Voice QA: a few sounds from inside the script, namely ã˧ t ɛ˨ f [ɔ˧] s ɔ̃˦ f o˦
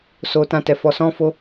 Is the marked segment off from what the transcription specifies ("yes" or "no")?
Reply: no